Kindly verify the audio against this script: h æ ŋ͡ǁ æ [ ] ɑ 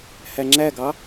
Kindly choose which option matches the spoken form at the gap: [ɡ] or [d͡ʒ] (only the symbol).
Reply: ɡ